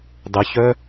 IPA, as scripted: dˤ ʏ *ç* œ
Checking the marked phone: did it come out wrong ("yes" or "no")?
no